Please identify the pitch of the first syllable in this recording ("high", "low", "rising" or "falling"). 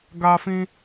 high